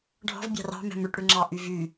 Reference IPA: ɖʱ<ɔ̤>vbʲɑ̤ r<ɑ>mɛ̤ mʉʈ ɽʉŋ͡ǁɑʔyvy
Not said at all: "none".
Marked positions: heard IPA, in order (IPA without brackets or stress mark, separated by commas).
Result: ɔ̤, ɑ̤